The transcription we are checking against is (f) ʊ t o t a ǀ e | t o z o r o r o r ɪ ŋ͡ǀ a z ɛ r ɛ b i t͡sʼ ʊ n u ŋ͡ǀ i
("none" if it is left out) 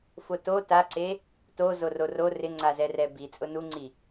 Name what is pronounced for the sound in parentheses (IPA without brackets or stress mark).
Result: f